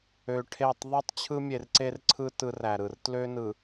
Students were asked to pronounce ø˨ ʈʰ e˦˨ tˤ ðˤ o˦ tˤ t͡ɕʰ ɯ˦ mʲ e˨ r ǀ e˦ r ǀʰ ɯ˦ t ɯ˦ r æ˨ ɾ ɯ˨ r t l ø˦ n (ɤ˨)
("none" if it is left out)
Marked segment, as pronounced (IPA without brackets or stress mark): ɯ˨